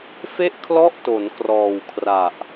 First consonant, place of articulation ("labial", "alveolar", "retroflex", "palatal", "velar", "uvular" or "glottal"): labial